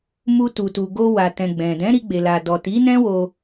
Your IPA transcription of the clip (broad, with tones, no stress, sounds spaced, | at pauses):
m u˧ t u˨ t u˨ ɡ o˧ w a˨ t ɛ̃˨ ɡ͡b ɛ̃˨ d ɛ̃˨˦ ɾ i˧ ɡ͡b e˨ l a˨ d ɔ˨ t i˨˦ n ɛ̃˦ w o˧